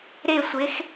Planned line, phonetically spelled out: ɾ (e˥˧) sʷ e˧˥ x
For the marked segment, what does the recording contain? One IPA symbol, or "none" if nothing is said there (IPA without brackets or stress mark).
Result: e˥˧